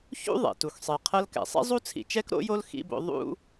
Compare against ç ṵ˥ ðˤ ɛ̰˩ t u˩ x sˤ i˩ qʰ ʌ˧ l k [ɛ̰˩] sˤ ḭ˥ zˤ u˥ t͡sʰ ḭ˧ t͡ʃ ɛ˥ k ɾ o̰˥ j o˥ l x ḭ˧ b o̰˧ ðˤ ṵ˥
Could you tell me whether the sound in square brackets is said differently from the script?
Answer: no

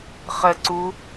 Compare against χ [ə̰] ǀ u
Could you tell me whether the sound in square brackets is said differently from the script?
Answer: yes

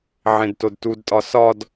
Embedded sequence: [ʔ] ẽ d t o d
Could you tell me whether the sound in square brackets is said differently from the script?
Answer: yes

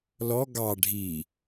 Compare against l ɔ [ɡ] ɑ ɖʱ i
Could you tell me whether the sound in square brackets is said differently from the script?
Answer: no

